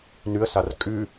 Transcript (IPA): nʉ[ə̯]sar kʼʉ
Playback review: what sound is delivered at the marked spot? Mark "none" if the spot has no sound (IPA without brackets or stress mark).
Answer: ə̯